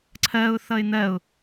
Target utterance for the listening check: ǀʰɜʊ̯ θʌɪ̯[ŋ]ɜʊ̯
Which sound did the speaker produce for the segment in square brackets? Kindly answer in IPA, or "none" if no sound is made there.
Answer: n̪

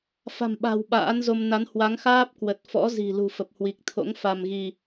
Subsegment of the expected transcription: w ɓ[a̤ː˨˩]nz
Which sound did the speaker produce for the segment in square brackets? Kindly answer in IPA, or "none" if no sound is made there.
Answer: a̰ː˧˥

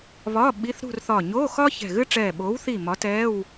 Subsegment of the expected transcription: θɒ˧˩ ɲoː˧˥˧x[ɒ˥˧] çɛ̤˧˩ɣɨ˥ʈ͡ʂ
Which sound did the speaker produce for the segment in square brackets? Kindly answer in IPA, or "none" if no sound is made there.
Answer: ɒ˥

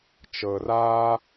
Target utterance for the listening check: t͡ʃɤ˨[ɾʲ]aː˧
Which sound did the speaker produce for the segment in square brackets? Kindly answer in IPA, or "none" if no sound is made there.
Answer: r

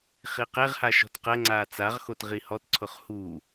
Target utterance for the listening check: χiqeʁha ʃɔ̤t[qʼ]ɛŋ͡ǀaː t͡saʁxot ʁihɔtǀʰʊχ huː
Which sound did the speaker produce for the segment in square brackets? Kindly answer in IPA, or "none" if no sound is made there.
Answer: q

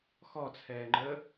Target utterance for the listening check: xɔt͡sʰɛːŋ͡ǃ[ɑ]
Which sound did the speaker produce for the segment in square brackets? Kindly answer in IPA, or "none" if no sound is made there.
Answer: ə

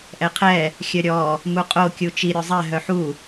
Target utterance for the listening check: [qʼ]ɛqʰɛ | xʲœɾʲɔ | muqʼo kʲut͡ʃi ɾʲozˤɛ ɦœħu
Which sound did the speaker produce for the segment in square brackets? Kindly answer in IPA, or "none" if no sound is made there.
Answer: ʔ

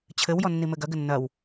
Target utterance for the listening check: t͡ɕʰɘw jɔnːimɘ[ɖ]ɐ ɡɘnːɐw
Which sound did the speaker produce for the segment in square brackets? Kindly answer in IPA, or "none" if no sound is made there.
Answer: ɡ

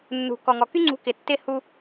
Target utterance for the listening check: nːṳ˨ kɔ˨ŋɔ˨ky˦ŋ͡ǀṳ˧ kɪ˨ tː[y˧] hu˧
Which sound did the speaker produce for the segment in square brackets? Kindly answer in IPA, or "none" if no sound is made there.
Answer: ɪ˧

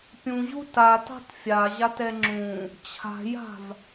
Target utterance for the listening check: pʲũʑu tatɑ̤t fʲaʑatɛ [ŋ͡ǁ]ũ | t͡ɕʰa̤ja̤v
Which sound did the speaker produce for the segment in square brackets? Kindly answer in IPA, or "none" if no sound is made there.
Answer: ŋ͡ǁ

